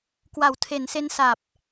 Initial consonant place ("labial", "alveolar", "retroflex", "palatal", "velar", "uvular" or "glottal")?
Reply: velar